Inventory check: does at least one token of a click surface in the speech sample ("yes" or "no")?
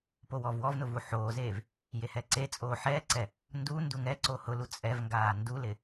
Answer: yes